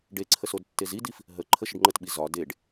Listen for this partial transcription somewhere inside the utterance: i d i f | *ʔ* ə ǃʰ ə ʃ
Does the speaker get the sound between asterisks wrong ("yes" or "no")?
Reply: yes